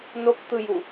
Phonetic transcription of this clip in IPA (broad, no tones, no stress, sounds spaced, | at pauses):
n o k t̪ ɯ j u